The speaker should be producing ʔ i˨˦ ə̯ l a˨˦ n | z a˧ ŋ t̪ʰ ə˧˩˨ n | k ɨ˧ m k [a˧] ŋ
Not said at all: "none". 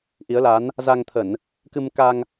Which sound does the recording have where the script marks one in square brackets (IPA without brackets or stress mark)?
a˧